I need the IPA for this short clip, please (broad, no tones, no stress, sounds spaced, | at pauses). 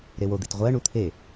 ɾ e w o d̪ i t ʁʷ ɜ ɳ u t̪ʰ e